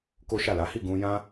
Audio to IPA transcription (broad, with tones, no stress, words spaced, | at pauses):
ko˦ʃa˦˨ la˨˦hi˦˨ ɡũ˧jã˦